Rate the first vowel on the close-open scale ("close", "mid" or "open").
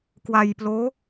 open